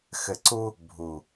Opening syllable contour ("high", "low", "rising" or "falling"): low